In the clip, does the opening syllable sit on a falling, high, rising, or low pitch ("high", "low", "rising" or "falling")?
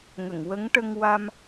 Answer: low